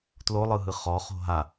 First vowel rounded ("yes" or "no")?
yes